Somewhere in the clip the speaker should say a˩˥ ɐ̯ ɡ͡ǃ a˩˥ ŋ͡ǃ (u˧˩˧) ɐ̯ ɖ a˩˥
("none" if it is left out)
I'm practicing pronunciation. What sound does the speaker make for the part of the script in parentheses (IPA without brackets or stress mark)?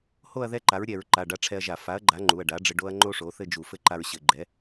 u˩˧˩